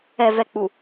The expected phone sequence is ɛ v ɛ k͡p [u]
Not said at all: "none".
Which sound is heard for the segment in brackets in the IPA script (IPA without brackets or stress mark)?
u